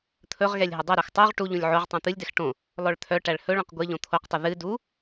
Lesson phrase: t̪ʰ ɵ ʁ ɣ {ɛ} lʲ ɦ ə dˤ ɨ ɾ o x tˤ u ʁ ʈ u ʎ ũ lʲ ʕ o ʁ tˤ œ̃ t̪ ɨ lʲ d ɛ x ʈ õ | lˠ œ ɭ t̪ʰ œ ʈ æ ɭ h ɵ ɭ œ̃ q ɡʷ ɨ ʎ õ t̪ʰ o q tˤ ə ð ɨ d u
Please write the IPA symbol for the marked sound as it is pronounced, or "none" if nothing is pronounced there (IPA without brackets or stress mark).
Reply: ɛ